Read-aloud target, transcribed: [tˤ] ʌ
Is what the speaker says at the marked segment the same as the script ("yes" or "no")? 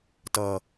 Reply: no